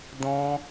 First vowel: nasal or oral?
nasal